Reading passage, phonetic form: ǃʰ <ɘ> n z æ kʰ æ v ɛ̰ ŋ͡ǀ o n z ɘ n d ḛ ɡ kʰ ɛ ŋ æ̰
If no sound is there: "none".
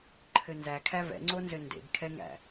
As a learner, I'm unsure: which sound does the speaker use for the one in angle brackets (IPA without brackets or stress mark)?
ɘ